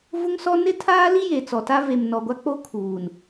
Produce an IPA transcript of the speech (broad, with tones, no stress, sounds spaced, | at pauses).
v ʊ˦ ŋ s ɔ˦ n ɪ˦ tʰ aː˦ l i˦ j e˨ t͡s ɔ˨ t a˦ v e˨ m n ɔ˨ ɡʷ a˦ k͡p o˦ kʰ uː˨ n